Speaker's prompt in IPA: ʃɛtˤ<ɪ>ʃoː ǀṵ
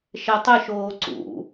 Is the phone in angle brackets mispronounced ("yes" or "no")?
no